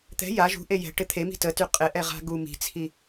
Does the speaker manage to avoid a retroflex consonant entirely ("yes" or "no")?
no